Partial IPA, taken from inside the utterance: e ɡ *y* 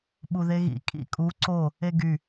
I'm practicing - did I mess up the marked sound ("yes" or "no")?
no